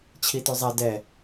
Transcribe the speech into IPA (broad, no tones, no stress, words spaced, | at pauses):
t͡ɕʰitʉzˤɛ dɛ